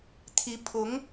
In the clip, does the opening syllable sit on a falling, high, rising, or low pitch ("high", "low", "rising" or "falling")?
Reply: rising